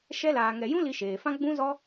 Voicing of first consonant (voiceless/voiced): voiceless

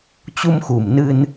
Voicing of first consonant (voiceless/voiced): voiceless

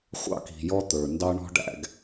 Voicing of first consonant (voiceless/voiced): voiceless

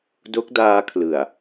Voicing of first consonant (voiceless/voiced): voiced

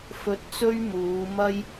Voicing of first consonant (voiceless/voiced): voiceless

